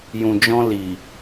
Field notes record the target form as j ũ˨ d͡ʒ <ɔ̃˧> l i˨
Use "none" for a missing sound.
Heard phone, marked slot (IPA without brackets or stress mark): ɔ̃˧